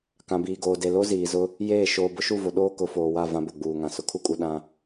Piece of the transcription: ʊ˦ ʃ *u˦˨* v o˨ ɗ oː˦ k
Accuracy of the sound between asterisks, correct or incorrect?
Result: correct